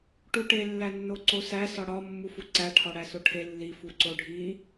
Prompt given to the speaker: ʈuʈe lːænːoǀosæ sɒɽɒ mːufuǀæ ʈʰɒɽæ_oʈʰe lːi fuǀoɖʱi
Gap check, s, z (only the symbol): s